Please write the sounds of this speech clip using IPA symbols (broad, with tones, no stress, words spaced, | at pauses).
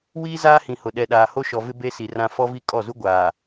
wiː˦ zaː˦hĩ˨hʊ˨ ɗɛ˨ɗaː˨ ho˦ʃɔ˨vɪ˦ be˦si˨rã˦ fɔ˦vi˦ kʼɔ˦˨zu˦ ɡʷaː˨